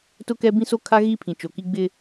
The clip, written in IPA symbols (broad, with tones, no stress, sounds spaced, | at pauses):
t ʊ˦ k ɛ˦ b ĩ˦ s o˦ kʰ a˦ ɣ i˦ pʰ ĩ˨ t͡ʃ o˨ k i˦ ɡ͡b ɪ˦